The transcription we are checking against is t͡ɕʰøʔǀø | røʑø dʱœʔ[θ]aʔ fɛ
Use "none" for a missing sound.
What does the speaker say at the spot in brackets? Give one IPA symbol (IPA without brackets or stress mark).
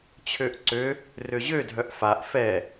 f